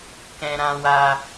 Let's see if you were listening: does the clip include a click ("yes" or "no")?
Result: no